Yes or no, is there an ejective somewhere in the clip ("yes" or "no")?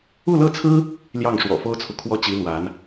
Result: no